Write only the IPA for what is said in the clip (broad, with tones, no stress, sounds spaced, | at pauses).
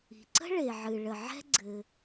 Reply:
i̤˩ ǀ ə̤˥ ɭ e˩ ʕ ɨ˩ ɭ ə˩ ʕ ɛ̤˥ ɡ͡ǀ ɘ˩